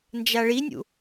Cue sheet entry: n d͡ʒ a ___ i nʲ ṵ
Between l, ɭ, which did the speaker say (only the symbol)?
ɭ